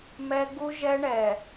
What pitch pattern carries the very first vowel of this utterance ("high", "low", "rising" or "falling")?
high